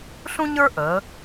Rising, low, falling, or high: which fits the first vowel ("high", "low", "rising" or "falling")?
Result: high